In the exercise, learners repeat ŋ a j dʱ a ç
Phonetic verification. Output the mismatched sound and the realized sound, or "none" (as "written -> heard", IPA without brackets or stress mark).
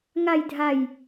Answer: ç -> j